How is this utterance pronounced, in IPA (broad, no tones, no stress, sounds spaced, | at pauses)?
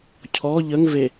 cʰ ɔ ʎ ə ŋ v e